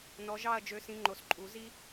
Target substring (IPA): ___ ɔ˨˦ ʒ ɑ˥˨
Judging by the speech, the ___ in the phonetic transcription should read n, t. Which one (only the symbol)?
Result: n